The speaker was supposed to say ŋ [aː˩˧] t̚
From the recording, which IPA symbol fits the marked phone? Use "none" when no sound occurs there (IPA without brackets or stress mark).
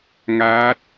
aː˧˥